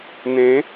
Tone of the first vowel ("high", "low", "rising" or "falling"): rising